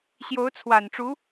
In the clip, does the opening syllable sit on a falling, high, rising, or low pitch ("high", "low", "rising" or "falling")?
rising